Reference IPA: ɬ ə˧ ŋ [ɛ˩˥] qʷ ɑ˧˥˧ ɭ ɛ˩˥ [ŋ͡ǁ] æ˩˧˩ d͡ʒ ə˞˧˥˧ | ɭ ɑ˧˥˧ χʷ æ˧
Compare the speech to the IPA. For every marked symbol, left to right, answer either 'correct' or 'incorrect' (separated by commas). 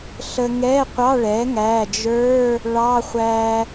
incorrect, incorrect